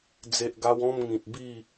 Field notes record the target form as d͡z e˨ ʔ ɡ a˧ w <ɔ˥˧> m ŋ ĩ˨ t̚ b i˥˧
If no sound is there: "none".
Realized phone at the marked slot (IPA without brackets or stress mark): ɔ̃˥˧